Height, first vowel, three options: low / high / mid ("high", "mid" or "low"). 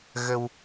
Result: mid